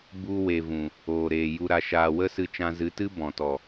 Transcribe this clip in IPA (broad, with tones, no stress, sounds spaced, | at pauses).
b u˧ w e˨ v ũ˨ | oː˨ ɾ eː˨ j u˨ ɾ a˨ ʃ aː˨ w ə˦ s ɨ˧ t͡ʃ ã˧ z ɨ˨˦ t ɨ˦ b ɔ̃˨ t ɔ˨